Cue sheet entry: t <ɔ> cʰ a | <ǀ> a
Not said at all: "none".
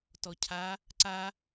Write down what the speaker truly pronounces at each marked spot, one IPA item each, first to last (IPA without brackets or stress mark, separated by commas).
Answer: ɔ, ǀ